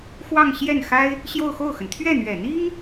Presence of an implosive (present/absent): absent